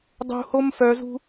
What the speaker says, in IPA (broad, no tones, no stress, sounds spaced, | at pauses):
dˤ ṳ h o m f œ z ṳ